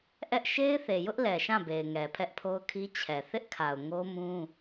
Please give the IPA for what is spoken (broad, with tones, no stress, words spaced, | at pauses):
ʔɛ˦ʔ ʃe˦ɪ̯θe˨jʊ˦ʔ lɛ˨ʃã˦˨be˨ɪ̯ ŋɛ˨pʰɛ˦ʔpʰo˦ʊ̯kʰi˦ t͡ɕʰɛ˨ θɪ˦ʔkʰa˨ʊ̯ ŋo˦mũ˦